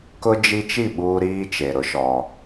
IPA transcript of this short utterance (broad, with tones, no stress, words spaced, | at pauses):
kʊ˦d͡ʒi˦t͡ʃi˦˨ ɓuː˦ɾiː˦t͡ʃe˨ɾʊ˨˦ ʃɔ˦